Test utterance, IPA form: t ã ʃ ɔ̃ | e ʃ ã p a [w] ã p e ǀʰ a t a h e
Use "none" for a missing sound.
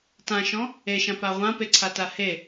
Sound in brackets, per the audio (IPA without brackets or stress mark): ʁʷ